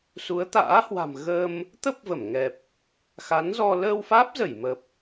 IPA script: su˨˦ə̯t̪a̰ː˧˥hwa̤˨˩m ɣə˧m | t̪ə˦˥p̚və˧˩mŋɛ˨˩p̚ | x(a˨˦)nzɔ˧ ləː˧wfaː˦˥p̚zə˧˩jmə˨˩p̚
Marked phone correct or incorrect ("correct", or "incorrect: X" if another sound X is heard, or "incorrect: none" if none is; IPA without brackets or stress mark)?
correct